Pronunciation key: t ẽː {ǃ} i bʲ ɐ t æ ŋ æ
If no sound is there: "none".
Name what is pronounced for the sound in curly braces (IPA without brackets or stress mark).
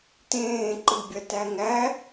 ǃ